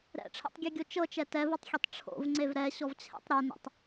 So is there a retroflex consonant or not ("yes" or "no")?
yes